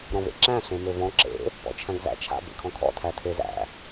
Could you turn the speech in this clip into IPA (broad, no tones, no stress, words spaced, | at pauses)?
ɾɔ̃vḛǁæ̃ ɬẽmøvɔ̃ ǁḛ | pɔ̰t͡ʃʰæ̃ɡzæ̰t͡ʃʰa̰ bḛkʰɔ̃kʰɔ̰ tʰætʰezæ̰